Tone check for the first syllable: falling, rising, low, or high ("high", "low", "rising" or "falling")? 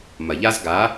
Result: low